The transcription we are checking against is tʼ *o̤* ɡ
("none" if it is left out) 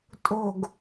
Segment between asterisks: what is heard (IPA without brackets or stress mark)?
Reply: o̤